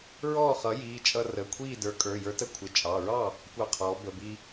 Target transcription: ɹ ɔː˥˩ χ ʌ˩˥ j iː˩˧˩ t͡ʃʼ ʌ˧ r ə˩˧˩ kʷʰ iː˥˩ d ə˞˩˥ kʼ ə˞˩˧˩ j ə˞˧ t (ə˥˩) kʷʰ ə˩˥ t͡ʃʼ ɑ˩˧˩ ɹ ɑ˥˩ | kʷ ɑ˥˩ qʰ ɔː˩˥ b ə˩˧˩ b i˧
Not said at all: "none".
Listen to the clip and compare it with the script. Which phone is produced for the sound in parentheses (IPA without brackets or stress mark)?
ə˥˩